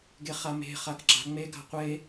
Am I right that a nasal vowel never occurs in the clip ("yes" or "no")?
yes